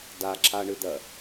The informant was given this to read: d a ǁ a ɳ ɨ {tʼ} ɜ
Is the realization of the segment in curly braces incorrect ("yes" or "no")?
yes